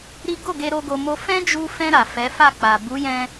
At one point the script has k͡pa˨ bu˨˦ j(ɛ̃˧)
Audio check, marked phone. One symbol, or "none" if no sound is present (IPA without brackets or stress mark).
ɛ̃˧